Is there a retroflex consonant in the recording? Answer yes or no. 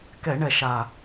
yes